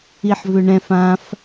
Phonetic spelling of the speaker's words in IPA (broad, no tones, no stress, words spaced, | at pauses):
iħvʏɳɛ̃f ãf